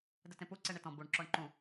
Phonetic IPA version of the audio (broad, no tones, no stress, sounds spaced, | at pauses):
d ɘ t ẽ p u ǀ e ɳ e t ɔ̃ b u ɳ ǁ ɔ ɳ ǃ ũ